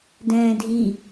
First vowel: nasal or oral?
nasal